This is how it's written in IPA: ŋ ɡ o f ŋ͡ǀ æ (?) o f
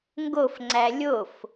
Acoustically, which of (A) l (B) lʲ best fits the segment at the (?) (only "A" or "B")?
B